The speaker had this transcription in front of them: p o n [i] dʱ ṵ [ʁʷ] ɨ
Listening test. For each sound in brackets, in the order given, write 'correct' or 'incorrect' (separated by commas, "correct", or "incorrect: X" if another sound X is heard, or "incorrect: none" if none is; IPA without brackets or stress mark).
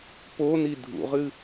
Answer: correct, incorrect: ʁ